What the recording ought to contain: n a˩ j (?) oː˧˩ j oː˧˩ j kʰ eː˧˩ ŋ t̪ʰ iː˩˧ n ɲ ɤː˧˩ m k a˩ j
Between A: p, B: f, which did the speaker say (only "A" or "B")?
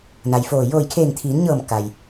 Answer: B